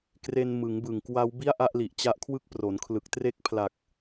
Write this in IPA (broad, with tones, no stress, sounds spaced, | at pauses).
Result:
k r e˧ n m ɯ˩˦ ŋ b ɯ˨˩ ŋ k w a˦˥ w b i˥˩ a̯ ʔ a˥˩ ʔ l i˨˩ ʔ t͡ɕ a˦˥ ʔ kʰ w ɯ˦˥ k̚ p r o˩˦ n kʰ l ɯ˨˩ k̚ t r e˦˥ k̚ pʰ l a˨˩ k̚